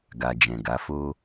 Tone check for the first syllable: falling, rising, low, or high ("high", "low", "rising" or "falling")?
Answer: low